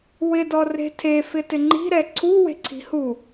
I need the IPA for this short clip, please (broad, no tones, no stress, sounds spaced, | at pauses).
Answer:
w ɪ d ɔ r e̤ tʰ e f ɪ t ɪ ŋ͡ǃ i̤ ɾ ɛ ǀʰ u w e̤ ǀʰ i̤ h u